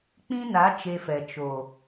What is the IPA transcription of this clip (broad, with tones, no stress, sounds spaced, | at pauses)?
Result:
k͡p ĩ˦ n a˨˦ t͡ʃ e˧ f ɛ˨ t͡ʃ o˨